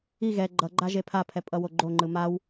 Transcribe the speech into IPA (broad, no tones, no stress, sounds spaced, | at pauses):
i ɣ ɛ ɡ͡ǃ ʌ ɡ͡ǃ a ʒ e pʰ a pʰ ɛ pʼ ʌ w o ɡ͡ǃ o ŋ͡ǃ ɯ m a w